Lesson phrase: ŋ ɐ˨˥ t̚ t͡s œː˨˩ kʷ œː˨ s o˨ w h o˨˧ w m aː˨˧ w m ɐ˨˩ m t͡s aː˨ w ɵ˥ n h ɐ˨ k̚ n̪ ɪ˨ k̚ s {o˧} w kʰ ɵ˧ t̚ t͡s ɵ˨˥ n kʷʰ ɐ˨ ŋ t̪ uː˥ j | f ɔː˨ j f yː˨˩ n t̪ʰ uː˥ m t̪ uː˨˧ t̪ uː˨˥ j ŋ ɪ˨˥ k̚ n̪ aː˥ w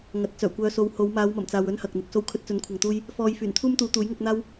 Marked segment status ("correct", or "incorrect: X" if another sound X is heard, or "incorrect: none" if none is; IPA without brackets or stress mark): correct